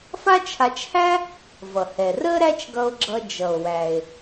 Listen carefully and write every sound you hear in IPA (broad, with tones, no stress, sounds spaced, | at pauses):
f a˥ t͡ʃʰ a˧ t͡ʃ h æ˥ | v ʌ˩ h ɛ˩ r ə˥ ɾ æ˥ t͡ʃ ɡ ʌ˧ o̯ ɡ͡ǁ ʌ˧ d͡ʒ ʌ˩ o̯ w æ˩ e̯